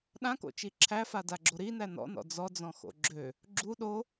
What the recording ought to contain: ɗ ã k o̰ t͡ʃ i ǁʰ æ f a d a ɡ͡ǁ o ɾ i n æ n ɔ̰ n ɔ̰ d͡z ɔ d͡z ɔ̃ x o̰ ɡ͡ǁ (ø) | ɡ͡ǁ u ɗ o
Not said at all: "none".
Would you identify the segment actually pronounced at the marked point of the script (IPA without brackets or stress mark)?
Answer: ø